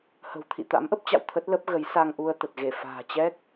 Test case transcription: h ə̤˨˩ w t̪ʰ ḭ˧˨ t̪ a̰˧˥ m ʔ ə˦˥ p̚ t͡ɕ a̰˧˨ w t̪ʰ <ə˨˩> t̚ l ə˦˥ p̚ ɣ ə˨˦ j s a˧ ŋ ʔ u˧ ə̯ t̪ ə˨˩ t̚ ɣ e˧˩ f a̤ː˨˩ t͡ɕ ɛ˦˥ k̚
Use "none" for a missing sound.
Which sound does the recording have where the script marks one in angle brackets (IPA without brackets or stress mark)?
ə˦˥